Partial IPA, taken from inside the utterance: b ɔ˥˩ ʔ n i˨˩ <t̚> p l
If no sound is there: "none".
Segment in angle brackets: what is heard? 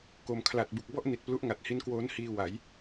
t̚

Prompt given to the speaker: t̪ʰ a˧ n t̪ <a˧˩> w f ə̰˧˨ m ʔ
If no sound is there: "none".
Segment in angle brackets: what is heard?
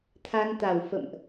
a˧˩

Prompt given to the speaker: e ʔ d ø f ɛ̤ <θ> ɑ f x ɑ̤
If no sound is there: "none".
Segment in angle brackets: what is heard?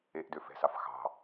s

